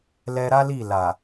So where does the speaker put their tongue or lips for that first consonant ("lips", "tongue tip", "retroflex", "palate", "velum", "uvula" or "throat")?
tongue tip